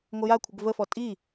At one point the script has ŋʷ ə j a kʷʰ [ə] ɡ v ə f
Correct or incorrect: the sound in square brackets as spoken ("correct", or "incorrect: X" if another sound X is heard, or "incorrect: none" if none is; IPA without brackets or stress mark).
correct